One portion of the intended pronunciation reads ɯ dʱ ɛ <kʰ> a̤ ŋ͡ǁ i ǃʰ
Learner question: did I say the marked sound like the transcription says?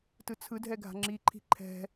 no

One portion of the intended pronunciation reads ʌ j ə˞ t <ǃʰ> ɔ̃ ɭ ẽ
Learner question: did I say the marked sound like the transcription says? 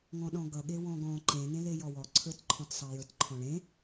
yes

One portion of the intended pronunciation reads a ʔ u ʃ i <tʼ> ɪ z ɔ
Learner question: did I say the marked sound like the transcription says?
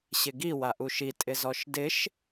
yes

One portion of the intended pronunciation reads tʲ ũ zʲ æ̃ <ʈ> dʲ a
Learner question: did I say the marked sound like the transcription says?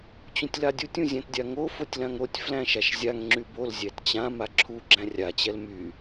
no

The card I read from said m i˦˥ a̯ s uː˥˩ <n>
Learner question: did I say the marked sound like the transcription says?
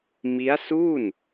yes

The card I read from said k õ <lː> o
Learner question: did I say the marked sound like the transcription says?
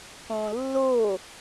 yes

